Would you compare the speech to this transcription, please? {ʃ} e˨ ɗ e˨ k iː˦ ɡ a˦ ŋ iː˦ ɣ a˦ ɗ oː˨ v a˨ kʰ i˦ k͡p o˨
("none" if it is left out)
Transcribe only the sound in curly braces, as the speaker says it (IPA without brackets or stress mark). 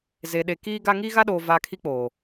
z